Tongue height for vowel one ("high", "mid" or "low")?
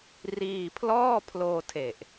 high